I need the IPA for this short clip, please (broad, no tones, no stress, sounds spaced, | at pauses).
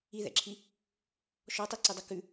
i ð ɛ̰ ǁʰ i | ʃ ɔ tˤ i ǀ i dˤ ʌ k ʉ